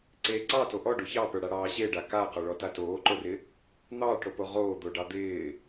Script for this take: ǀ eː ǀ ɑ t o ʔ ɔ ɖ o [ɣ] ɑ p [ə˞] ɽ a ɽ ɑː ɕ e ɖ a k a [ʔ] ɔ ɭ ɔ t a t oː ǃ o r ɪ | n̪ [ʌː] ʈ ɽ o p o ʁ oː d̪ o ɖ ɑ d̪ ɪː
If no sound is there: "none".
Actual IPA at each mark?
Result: ç, ə˞, q, ɑː

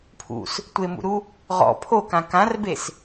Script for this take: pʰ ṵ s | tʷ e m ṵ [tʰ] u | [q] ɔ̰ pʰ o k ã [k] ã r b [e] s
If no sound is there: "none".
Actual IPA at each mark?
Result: ɾ, ʁ, k, e

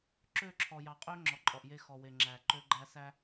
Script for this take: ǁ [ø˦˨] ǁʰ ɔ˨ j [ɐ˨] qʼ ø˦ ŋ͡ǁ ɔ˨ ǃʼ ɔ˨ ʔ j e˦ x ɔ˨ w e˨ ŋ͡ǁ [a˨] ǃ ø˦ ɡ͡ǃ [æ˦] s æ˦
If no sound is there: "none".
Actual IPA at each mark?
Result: ø˦˨, ɑ˨, æ˨, æ˦

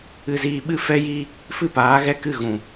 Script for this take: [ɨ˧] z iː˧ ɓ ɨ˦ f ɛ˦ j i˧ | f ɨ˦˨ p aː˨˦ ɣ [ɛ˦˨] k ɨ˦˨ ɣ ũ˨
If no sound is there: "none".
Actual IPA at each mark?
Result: ɨ˧, ɛ˦˨

